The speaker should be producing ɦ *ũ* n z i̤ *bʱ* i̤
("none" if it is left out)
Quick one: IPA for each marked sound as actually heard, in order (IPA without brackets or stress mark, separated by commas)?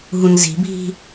ũ, bʱ